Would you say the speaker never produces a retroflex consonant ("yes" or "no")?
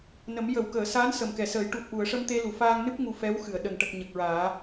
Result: no